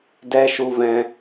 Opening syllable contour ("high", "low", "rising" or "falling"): high